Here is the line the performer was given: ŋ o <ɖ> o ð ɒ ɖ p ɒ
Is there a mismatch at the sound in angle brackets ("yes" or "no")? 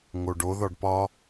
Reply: no